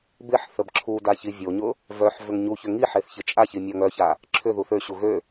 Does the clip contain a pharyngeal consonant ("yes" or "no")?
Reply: yes